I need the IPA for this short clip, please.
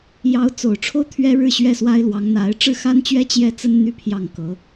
jɑ˧˥ʊ̯ t͡so˨˩ʊ̯ʈ͡ʂʰo˥ʊ̯ t̪ʰɥɛ˥ɻɻ̩˥˩ ɕɥɛ˥swa˥ɪ̯lwɑ˧˥ŋn̪a˧˥ɪ̯ ʈ͡ʂɻ̩˥˩xa˥nt͡ɕɥɛ˥ t͡ɕjɛ˥˩t͡sə˥n n̪y˥pʰjɑ˥˩ŋkɤ˧˥

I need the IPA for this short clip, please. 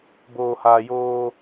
boː˨haː˨joː˦

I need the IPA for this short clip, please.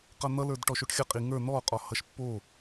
qʌn̪ʌlə˞d ʈɔʃoʈxʲʌqʼi ŋə˞ n̪ɔqʼɔ hʌʃpːo

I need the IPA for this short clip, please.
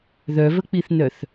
ðœvək͡piθnœθ

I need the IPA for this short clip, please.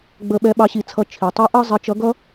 ɡ͡bə˧ɓɛ˧˥ ɓɑ˧˥ɕi˧t͡sʰʌ˧˥ t͡ʃʰi˩tˤi˧˥ʔɑ˥ zˤɪ˧˥t͡ʃʌ˧˥ɡʌ˥

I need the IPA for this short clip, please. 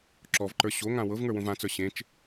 ǁɔvǃə˞ ɕoŋã wɤvŋə˞wõv ãt͡sə˞ ɕẽt͡ʃ

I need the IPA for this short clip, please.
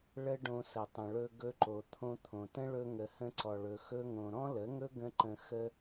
ɭə˦ɖõ˧sə˨ tˤə̃˨ɭɵ˧ɡɵ˧ǃo˨ t̪ʰõ˧t̪ʰõ˨tə̃˦ ɭɵ˧ŋə˨hə̃˧ ǀɔ˨ɭɵ˨ xɵ˧ŋõ˨ ɾɔ̃˦lə˨˦ŋɵ˦ɡə̃˧ ǃə̃˧ xə˧

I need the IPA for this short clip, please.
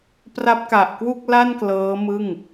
pra˦˥p̚ka˨˩ʔ kwu˥˩k̚la˥˩n klɤː˦˥mɯ˥˩ŋ

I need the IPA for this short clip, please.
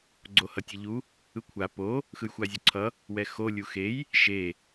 ɡ͡ǀohʌtʲʌʎu | ɯkʷʰa po | xɯjxʷazʲoǀʰʌ | wɛxo lʲuxej | ʃe

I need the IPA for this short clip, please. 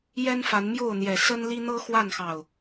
jɛ˦nfa˨˦nmjo˥˨ʊ̯n̪jɛ˨˩ sə˦nli˦ n̪ɤ˦ xwa˥˨nxɑ˨˩ʊ̯

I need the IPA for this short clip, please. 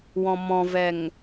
wɔ̃mɔ̃vɛŋ

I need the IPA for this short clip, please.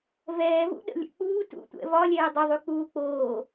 vɛːvṵ ɗə̰lʲə̰ k͡puː tṵtʷɛ̰ vɒlʲɛː dˤəðˤy k͡puːk͡poː

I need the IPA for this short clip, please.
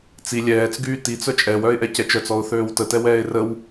t͡si lʲɛːt͡s ɡyːtit͡s œt͡ʃʼɛw œɪ̯ʔɛcɛt͡ʃœt͡s ɔʊ̯θøːwtə tɛwɛːɪ̯rəw

